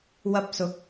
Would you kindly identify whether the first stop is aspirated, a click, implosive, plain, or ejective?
plain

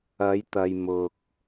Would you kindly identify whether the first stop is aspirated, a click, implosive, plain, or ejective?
plain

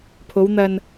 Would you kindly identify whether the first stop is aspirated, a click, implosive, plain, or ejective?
aspirated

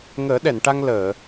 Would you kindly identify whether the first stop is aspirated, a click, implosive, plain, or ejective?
implosive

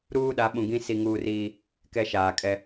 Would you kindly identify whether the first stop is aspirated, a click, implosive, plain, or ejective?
implosive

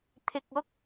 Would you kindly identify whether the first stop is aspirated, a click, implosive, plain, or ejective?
aspirated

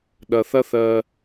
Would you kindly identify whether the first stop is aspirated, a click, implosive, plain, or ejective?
implosive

